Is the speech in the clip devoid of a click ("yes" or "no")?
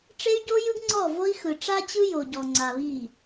no